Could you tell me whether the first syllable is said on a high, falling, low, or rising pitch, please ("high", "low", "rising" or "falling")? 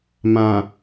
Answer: low